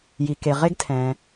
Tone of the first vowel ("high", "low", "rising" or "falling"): low